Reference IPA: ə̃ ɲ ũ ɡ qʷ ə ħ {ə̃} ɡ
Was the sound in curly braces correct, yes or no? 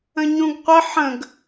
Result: yes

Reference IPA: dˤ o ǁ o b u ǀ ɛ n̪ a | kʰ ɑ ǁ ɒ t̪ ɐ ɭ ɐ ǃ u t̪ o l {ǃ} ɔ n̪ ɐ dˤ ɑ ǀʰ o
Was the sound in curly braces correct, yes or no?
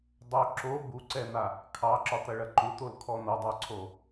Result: no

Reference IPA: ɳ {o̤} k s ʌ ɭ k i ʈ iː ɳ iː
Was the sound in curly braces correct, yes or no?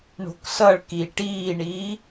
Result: yes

